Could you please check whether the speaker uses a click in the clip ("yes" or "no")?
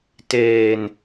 no